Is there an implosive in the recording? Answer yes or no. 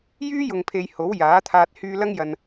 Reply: no